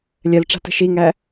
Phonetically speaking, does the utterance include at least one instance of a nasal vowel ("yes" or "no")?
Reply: no